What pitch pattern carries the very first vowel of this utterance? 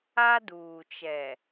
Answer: high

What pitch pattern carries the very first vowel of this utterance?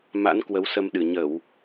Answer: rising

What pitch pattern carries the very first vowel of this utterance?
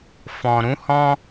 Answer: low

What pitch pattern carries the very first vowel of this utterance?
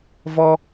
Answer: high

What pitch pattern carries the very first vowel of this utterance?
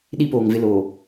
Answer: high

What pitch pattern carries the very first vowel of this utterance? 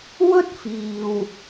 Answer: high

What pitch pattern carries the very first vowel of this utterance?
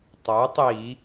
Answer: rising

